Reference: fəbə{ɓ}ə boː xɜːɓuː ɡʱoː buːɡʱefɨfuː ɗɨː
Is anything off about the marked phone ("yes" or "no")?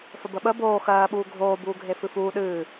no